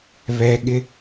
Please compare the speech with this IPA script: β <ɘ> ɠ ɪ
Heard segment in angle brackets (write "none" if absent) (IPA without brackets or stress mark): ɛ